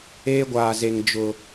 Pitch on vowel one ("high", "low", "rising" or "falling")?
high